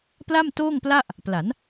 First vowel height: low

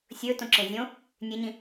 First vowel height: mid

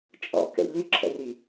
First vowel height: mid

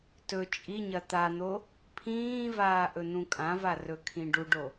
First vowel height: mid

